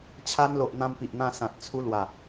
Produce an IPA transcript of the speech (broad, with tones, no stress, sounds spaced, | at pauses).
t͡ɕʰ a˧ n l o˨ ʔ n̪ ã˧ m p i˨ ʔ n̪ ã˧ s ã˨ t̚ t͡sʰ u˧ l w a˨˩